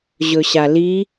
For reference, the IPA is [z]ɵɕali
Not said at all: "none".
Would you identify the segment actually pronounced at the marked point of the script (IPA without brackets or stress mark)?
ʑ